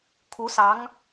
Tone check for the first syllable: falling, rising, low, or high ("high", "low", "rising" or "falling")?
rising